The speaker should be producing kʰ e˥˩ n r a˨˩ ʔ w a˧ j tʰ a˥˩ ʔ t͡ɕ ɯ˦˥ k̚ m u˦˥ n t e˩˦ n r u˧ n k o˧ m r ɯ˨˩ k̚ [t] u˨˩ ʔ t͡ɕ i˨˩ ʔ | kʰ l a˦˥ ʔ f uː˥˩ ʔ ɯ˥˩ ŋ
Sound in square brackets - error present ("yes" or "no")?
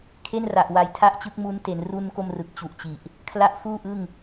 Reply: yes